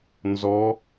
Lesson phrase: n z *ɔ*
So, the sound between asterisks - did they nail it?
yes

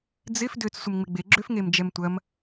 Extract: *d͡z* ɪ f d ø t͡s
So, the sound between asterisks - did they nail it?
yes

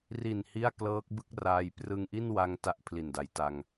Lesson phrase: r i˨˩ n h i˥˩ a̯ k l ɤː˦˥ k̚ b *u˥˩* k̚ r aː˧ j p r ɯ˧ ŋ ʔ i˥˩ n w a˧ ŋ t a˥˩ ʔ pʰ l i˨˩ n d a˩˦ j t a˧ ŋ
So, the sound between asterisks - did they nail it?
no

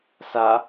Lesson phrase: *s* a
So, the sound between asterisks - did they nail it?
yes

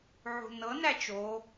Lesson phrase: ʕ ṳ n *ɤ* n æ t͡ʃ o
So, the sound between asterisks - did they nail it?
yes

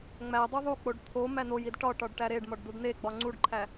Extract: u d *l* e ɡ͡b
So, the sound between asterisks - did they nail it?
no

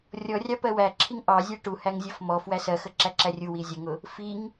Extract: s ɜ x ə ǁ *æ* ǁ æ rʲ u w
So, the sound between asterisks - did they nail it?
yes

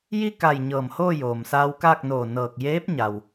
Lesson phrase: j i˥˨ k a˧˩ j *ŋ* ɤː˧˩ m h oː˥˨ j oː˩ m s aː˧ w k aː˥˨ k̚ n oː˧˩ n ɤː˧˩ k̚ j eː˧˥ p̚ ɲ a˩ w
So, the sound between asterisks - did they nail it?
no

